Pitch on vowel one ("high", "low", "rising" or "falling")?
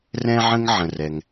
high